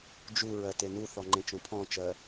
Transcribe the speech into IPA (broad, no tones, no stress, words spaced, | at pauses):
d͡ʒuɹɜ tenuθɔ ŋ͡ǃẽt͡ʃõpʰɔ̃t͡ʃɜ